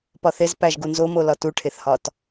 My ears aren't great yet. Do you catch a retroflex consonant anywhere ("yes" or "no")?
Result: yes